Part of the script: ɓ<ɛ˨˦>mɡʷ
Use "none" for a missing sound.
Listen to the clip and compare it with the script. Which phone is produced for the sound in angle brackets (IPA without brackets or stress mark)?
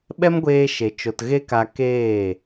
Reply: ɛ˦